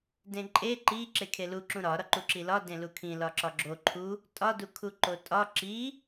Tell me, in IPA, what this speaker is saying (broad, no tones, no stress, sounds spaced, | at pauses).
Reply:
d ẽ ǃʼ e ǃ i ǁ e kʰ e l u ǁ ũ ɾ ɒ ɾ ɒ ǃ u ǁ i l ɒ d ẽ l u kʰ ĩ l ɒ ǁ ɒ ɡ͡ǁ o ǃʰ u | tʼ ɒ d u kʰ u ǃ o tʼ ɒ ǁ i